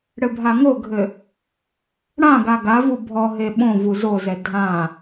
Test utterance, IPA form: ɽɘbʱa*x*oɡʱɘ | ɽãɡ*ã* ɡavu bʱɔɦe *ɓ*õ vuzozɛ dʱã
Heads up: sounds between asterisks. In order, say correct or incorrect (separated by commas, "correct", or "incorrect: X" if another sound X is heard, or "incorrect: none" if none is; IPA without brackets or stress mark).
incorrect: ŋ, incorrect: a, correct